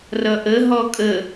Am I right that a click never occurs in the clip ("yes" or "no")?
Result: yes